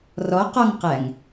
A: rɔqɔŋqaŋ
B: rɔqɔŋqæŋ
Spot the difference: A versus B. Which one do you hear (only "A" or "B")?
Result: B